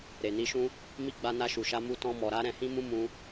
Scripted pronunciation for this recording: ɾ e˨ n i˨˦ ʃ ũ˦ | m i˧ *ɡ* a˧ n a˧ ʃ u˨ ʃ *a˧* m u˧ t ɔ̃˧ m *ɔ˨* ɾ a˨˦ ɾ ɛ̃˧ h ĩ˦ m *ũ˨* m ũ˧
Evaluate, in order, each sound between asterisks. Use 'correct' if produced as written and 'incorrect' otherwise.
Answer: incorrect, correct, correct, incorrect

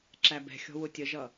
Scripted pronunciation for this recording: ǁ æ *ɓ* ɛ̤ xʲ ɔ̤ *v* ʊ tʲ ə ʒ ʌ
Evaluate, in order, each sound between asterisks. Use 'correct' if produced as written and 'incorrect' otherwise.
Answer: incorrect, incorrect

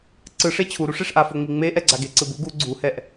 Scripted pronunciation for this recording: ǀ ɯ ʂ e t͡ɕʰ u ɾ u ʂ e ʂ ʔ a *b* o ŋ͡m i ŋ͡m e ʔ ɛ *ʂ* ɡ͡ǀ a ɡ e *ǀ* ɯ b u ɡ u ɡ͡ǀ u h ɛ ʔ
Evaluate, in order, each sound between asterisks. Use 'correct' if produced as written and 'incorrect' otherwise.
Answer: incorrect, incorrect, correct

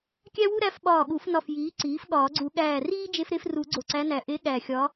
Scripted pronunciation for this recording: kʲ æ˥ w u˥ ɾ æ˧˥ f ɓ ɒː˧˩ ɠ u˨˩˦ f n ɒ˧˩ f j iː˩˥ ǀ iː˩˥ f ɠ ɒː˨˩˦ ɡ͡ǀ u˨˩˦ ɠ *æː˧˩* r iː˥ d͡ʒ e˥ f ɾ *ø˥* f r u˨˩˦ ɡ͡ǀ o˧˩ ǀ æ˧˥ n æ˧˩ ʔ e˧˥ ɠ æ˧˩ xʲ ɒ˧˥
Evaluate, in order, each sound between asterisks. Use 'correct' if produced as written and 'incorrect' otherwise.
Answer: correct, incorrect

